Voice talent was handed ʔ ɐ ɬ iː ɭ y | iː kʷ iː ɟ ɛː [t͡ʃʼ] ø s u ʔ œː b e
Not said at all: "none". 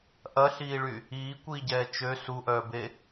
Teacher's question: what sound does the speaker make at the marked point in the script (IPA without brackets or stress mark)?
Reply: t͡ʃ